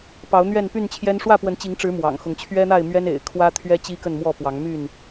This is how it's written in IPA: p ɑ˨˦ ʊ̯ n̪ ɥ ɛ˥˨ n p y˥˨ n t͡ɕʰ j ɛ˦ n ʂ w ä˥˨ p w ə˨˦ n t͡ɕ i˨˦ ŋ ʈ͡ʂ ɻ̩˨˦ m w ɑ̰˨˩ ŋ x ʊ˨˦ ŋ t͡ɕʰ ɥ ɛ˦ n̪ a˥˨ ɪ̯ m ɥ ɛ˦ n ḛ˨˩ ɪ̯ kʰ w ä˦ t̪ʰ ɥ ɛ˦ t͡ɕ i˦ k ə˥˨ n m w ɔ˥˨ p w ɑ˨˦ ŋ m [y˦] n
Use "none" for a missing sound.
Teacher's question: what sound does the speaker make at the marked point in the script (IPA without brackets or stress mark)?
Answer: y˥˨